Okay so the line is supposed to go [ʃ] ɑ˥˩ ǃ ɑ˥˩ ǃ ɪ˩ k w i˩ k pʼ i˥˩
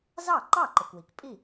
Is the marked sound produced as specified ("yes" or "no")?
no